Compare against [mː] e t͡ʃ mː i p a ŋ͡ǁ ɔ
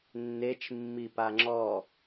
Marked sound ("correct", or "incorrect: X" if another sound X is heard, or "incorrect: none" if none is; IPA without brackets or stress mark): incorrect: nː